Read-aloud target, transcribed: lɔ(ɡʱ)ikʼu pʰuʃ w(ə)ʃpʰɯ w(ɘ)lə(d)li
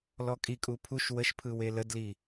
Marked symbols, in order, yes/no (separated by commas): no, yes, no, yes